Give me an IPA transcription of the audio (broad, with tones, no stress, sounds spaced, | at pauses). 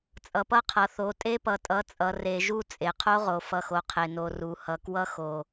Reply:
t͡sʼ ʌ˨ p ʌ˦ qʰ ʌ˨ θ o˨ tʼ e˦ p ʌ˨ tʼ ʌ˨˦ t͡sʼ ʌ˨ r e˨ ʒ u˦ t͡sʼ e˨ qʰ o˦ ʁ o˨ f ʌ˨ x o˨ qʰ e˨ n o˨ r u˨ h ʌ˨ k w ʌ˦ x o˨